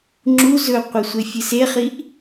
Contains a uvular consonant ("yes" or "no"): yes